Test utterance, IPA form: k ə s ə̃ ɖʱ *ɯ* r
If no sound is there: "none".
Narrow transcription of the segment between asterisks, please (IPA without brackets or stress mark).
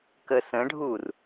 u